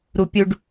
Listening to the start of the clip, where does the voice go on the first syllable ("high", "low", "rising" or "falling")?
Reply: high